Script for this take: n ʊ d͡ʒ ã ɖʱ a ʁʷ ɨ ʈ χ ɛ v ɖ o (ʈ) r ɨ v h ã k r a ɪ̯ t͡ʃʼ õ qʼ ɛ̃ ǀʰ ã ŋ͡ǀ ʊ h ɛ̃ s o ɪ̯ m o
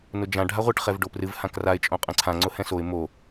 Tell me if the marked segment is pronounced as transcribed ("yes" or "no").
no